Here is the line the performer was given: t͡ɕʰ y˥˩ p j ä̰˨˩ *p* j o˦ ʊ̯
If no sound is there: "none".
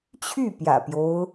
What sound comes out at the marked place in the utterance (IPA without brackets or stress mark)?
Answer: p